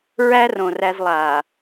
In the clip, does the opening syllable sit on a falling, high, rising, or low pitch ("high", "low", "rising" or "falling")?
high